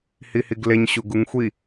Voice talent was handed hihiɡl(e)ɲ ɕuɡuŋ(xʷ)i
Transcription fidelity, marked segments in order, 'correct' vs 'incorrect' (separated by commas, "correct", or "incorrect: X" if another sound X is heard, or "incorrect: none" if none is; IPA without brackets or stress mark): correct, correct